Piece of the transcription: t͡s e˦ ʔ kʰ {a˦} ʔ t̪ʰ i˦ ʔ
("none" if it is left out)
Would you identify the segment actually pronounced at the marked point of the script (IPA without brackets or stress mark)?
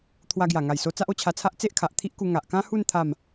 a˨